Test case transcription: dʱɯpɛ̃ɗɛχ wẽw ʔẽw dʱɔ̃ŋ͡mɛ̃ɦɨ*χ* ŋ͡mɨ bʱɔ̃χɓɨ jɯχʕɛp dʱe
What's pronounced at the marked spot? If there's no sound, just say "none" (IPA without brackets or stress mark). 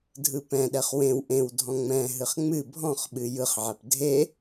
χ